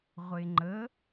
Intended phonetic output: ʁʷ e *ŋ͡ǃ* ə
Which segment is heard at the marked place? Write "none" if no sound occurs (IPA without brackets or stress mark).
ŋ͡ǃ